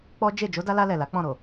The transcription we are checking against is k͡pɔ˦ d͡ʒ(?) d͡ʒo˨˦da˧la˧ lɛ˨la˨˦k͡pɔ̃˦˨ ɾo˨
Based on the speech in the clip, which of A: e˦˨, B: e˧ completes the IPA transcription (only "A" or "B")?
A